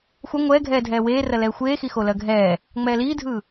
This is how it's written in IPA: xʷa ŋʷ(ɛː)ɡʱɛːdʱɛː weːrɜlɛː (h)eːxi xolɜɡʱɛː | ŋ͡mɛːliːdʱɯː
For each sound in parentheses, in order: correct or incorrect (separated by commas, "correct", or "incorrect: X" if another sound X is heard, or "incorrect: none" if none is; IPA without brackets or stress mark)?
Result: correct, incorrect: xʷ